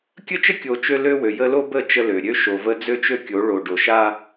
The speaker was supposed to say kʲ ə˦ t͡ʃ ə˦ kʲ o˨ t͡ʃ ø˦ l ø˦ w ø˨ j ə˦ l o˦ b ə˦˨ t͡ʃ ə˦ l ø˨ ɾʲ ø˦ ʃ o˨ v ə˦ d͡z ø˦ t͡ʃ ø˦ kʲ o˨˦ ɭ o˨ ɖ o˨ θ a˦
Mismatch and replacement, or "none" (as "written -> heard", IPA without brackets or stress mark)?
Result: θ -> ʃ